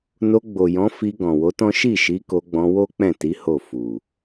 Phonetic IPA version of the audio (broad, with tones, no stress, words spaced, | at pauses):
no˧ɡ͡bo˨jɔ̃˨˦fi˧ ɡɔ̃˨wo˨˦tɔ̃˦ ʃi˦˨ʃi˨˦ko˧ɡ͡bɔ̃˧ wo˦k͡pɛ̃˦˨ti˨˦ ho˦˨fu˨